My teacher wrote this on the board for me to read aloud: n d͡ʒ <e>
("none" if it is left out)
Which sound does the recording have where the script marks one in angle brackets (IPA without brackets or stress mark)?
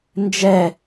ɛ